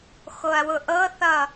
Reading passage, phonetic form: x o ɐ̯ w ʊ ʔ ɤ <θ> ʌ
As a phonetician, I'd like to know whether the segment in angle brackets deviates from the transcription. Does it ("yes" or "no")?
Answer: no